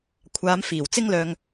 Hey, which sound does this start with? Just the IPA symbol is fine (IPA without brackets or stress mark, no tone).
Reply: kʷʰ